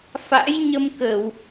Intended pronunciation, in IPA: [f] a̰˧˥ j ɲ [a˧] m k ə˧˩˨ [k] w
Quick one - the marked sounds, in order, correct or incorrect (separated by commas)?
correct, incorrect, incorrect